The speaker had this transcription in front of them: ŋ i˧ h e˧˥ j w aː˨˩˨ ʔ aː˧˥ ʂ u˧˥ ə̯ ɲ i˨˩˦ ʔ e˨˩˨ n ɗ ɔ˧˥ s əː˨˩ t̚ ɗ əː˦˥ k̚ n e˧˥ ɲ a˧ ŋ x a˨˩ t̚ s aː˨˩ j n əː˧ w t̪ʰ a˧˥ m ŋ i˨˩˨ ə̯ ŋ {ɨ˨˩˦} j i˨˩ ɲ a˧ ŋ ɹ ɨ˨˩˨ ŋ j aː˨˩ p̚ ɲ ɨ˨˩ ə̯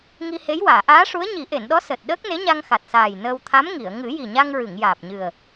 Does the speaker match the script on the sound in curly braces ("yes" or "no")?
yes